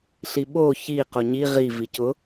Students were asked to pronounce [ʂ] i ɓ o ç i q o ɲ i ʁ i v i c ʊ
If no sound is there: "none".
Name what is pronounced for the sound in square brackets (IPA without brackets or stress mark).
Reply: ɬ